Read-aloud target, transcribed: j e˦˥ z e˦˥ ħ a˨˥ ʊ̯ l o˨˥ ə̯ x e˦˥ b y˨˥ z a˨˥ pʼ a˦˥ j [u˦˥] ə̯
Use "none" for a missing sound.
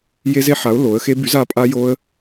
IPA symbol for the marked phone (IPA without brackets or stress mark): o˦˥